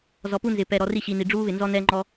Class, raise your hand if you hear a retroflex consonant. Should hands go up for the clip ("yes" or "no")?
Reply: yes